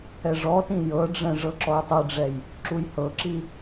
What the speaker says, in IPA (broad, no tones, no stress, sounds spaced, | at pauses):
ɛ ʐ ɔ t ĩ j ɤ ɖ͡ʐ ɛ̃ ʐ ɤ ǁ ɔ j tˤ i ɖ͡ʐ ɛ j | ǁ u j h ɤ ǁ i